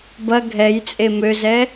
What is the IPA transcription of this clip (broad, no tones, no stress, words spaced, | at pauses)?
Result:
bɐ ɡʱɛjt͡sʼe møzɛ